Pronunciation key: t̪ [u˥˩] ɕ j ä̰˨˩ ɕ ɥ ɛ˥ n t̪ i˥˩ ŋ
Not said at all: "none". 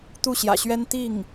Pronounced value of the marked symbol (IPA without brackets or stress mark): u˥˩